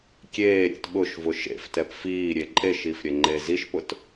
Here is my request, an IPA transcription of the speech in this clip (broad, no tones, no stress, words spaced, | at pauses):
kʲeːɾʲɛ̰t ɓʊʃvʊ ʃḛftɛp fiːɾʲe ǃʼeʃiːfɾʲɛŋ͡ǃeː ziʃpʊt